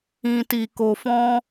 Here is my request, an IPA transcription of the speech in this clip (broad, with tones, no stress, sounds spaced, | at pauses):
ĩ˨ t i˨ k o˨ f ɔ̃˧